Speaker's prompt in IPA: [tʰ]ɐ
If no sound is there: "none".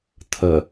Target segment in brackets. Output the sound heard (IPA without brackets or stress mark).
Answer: tʰ